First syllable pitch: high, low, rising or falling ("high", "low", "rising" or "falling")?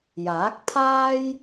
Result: rising